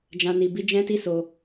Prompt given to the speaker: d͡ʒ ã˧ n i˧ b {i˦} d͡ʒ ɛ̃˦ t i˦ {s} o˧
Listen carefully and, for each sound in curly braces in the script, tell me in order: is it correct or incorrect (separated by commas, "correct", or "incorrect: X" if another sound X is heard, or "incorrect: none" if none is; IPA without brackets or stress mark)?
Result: correct, correct